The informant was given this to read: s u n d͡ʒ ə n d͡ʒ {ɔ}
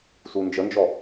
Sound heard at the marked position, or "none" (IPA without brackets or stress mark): ɔ